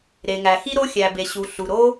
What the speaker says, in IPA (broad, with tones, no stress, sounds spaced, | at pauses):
ɾ e˩ ŋ æ˩ x i˥ ɾ o˥ xʲ æ˩ b e˩ ɕ u˩ ɬ u˩ ɾ o˥